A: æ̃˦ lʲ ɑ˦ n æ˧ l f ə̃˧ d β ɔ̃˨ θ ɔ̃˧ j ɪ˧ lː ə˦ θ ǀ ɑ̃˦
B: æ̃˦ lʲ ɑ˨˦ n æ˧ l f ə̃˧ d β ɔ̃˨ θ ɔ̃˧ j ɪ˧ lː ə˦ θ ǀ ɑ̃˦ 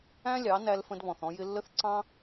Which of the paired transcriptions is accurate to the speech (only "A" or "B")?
B